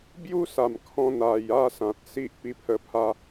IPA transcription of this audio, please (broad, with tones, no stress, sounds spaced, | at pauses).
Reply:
b j u˦ s a˨˩ m kʰ ɔ̃˧ n̪ a˨˩ j a˥˧ s ã˨ t̚ s i˦ ʔ p i˧ pʰ ə˧ pʰ a˧